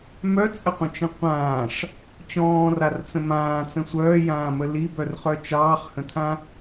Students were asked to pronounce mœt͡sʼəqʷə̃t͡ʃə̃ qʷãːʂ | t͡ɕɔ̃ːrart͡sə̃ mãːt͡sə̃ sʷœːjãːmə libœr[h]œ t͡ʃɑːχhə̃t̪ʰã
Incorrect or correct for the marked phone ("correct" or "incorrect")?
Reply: incorrect